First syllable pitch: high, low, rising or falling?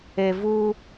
low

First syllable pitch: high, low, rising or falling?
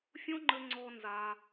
high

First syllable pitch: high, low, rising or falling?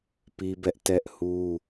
high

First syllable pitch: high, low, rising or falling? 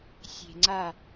low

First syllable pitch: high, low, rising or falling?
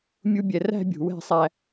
high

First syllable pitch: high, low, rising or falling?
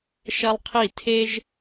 high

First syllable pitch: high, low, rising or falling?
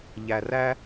low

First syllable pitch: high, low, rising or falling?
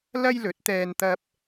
high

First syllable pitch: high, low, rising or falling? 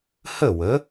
falling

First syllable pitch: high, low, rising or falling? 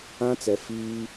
high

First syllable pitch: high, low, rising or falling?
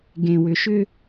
low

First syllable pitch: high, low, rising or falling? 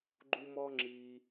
high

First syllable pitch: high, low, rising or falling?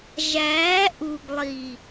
rising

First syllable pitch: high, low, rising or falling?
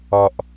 low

